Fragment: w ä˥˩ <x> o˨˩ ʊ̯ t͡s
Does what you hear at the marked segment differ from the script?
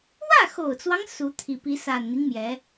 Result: no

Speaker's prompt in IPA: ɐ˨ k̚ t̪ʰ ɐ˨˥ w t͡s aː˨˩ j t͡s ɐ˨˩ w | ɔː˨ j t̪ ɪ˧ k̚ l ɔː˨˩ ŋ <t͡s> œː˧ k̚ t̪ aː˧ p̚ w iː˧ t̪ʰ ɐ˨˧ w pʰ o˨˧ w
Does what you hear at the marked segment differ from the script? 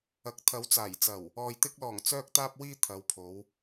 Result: no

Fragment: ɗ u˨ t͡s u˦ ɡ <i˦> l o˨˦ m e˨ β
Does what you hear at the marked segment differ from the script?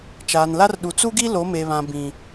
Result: no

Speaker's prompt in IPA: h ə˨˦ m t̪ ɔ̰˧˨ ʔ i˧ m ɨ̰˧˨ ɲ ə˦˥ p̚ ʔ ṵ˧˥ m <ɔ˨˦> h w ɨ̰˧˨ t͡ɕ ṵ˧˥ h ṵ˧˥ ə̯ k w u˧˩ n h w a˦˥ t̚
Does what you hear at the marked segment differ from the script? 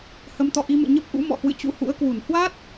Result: yes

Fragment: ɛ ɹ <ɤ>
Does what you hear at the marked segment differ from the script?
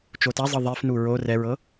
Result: no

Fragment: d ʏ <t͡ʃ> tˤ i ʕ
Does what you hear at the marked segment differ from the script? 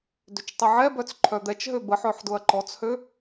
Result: no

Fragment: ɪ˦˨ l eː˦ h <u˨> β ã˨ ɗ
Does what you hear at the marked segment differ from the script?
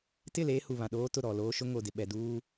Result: no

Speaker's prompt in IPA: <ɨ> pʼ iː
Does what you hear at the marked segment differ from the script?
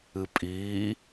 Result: no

